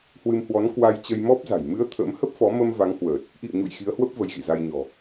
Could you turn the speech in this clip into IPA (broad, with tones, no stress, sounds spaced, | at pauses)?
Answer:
h w ɨ˧ m h w ɔ˨˦ n k w a˧ j t͡ɕ ə˧ j m ɔ˦˥ p̚ z a̤˨˩ j m ɨ˨˦ ə̯ t̪ʰ ə̰˧˥ m h ə˦˥ p̚ f ɔ˨˦ m ə˧ m v a˨˦ ŋ h w əː˨˩ t̚ | ʔ ḭ˧˨ ə̯ ɲ ṵ˧˨ j x i˨˦ ə̯ h w ə˦˥ p̚ v ə˨˦ j ɣ ḭ˧˨ z a˧ j ɲ ɔ̤˨˩